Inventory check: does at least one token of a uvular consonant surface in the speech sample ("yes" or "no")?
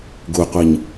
yes